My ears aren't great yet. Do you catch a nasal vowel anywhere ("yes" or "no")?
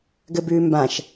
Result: yes